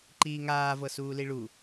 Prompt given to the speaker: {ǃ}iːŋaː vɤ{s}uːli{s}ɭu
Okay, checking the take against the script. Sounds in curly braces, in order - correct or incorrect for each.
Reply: correct, correct, incorrect: none

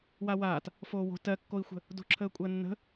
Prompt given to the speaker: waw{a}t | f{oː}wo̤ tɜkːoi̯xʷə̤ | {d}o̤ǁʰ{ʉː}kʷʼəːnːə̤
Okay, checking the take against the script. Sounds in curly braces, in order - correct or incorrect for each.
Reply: incorrect: aː, correct, correct, incorrect: əː

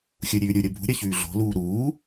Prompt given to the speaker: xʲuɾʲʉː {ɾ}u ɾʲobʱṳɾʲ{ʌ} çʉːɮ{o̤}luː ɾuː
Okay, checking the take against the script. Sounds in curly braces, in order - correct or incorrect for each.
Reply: incorrect: ɾʲ, correct, correct

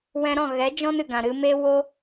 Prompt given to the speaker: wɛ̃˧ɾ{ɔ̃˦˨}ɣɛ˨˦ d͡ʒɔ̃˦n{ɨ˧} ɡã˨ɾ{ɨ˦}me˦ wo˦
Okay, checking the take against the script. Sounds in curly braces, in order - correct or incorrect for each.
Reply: correct, incorrect: ɨ˨, incorrect: ɨ˧

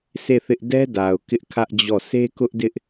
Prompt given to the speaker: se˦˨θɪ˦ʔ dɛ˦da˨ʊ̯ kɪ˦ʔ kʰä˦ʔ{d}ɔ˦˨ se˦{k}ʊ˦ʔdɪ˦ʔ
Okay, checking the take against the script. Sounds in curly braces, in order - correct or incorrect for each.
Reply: incorrect: d͡ʑ, correct

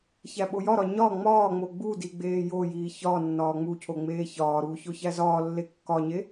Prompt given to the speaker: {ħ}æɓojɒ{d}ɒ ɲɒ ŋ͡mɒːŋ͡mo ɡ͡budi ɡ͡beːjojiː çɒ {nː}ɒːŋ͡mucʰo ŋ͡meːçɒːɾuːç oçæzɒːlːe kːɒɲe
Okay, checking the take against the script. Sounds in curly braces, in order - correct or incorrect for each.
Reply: incorrect: ç, incorrect: ɾ, correct

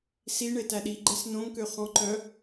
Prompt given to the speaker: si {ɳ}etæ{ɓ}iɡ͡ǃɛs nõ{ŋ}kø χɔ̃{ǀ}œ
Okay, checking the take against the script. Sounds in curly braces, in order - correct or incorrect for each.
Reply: correct, incorrect: ɗ, correct, incorrect: ǃ

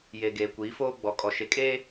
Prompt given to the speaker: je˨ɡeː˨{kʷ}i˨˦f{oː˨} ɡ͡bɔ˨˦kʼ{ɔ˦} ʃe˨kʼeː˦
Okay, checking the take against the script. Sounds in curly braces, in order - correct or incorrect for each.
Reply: correct, incorrect: oː˦, incorrect: ɔ˨

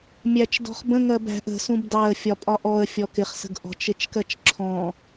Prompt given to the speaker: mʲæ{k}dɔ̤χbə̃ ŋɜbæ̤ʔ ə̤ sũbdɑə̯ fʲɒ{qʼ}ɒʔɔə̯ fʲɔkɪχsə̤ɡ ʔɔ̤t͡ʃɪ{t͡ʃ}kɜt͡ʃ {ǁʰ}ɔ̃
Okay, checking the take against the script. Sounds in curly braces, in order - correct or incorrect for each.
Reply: incorrect: t͡ʃ, incorrect: pʼ, correct, correct

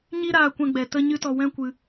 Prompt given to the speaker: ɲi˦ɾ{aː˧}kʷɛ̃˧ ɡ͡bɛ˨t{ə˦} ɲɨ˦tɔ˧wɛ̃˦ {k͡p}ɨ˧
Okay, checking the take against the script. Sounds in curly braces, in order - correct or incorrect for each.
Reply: correct, correct, incorrect: kʷ

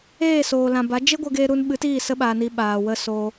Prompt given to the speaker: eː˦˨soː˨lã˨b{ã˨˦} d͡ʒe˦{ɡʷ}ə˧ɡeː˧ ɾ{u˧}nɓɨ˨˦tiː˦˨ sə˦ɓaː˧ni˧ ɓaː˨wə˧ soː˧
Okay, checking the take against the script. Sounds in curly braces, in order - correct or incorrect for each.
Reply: incorrect: a˨˦, correct, correct

